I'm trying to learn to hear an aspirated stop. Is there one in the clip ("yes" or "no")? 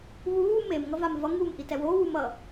no